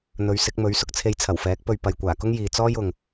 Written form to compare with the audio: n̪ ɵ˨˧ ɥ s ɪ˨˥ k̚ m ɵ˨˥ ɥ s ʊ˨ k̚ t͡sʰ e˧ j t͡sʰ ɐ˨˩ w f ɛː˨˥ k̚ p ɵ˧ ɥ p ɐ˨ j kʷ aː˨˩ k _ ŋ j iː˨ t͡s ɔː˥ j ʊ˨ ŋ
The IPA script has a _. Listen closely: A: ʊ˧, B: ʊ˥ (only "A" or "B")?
B